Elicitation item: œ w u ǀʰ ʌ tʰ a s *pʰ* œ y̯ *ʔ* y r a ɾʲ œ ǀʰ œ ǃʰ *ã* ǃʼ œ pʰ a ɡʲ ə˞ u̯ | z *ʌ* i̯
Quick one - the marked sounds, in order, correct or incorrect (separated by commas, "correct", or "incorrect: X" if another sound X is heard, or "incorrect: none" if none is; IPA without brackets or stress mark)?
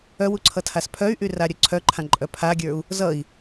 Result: correct, correct, correct, correct